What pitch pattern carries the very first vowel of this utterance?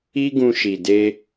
high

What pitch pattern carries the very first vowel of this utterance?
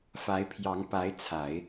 rising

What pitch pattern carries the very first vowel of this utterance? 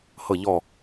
low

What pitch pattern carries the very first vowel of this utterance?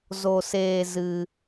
high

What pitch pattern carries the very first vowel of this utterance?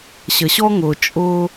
low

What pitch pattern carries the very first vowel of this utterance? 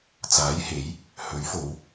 rising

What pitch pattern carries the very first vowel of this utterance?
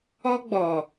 high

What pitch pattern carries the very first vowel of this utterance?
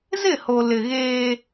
falling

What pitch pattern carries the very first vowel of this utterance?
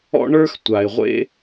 high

